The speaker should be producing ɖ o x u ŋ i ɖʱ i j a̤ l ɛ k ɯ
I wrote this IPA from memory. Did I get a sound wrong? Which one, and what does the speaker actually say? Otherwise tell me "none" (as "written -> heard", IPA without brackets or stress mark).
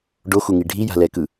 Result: none